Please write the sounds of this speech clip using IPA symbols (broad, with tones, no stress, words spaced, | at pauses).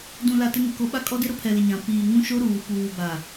dũ˨la˨ tɪ˦ŋɪ˨ko˦ ɓa˦kʼɔ˦dɪ˦ ɾʊ˦pʰɛ˨lɪ˨ ɲã˨ piː˨ ŋũ˦ʃo˦ɾuː˨ puː˨ba˨